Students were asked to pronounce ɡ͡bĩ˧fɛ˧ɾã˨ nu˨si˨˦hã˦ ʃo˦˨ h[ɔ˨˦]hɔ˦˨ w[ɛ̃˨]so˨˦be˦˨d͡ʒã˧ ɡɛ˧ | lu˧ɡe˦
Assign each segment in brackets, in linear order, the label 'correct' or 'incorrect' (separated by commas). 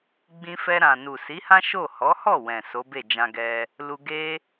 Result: correct, correct